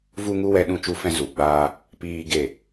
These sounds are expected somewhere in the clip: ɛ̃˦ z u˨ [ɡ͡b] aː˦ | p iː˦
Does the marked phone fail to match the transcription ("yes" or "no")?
no